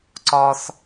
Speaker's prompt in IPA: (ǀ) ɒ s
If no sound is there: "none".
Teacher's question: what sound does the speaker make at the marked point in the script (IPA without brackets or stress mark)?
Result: ǀ